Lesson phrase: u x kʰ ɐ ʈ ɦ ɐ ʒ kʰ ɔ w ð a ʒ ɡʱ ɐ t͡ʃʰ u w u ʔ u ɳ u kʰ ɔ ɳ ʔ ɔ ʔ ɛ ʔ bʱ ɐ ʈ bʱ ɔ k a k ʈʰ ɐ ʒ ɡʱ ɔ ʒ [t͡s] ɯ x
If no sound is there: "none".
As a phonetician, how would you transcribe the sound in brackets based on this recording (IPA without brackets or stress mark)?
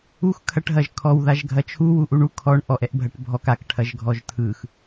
tʰ